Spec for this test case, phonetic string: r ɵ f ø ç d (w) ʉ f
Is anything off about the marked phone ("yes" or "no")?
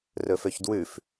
no